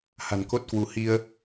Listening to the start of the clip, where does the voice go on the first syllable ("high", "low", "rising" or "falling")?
low